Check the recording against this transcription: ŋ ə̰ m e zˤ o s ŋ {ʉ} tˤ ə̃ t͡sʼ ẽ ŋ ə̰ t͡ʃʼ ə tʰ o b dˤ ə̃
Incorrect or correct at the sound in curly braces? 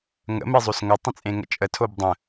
incorrect: ə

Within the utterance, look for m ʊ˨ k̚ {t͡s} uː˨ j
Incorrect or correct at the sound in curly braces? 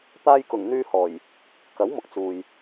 correct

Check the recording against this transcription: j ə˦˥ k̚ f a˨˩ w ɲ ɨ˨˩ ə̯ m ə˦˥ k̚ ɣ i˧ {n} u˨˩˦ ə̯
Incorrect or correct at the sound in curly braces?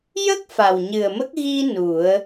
correct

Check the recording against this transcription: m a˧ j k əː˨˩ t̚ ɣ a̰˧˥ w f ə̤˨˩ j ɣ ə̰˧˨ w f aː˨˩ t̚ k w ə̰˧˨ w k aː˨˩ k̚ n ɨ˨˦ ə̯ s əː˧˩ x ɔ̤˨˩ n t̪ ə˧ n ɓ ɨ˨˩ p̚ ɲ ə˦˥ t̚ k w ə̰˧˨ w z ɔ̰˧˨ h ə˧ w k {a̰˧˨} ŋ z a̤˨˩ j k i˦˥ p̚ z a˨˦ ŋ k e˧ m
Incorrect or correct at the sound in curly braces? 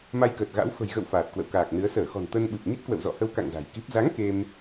correct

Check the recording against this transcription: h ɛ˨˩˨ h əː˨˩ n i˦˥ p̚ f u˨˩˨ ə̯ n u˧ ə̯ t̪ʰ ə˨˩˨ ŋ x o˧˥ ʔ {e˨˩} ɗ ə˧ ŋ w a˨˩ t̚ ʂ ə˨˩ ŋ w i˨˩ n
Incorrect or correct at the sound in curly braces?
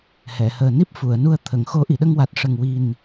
incorrect: i˨˩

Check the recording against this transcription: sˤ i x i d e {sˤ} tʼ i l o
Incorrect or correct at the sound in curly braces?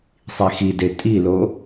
incorrect: none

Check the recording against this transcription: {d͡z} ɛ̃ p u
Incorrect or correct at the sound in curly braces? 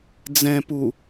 correct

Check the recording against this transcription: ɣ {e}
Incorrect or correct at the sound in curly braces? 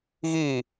incorrect: i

